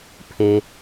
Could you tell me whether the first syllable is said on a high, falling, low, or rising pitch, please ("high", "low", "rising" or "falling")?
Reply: low